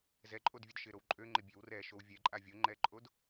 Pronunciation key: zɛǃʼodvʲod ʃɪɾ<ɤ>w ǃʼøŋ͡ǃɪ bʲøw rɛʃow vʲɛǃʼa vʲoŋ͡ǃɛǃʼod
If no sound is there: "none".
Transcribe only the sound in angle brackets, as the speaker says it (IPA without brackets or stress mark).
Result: o